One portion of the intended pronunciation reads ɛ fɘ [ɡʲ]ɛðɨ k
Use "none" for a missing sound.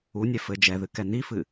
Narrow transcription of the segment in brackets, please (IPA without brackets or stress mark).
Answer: d͡ʒ